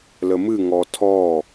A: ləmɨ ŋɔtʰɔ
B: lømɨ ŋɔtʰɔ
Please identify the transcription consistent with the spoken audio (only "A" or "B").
A